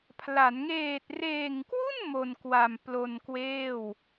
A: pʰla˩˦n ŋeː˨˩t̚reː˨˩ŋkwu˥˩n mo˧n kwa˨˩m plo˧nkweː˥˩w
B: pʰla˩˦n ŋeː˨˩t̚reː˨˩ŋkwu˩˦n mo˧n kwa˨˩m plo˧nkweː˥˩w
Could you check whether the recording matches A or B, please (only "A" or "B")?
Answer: A